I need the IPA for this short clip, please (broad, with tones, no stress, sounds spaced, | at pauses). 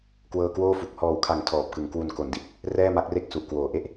k w ɤː˧ k w oː˥˩ f u˨˩ k̚ h ɔː˨˩ w kʰ a˩˦ ŋ tʰ ɔː˨˩ p̚ k ɯ˨˩ ŋ k w u˧ n k o˩˦ n d i˦˥ t̚ | r ɛː˥˩ m a˦˥ k̚ r e˥˩ k̚ s u˨˩ ʔ k w oː˨˩ ʔ e˥˩ ʔ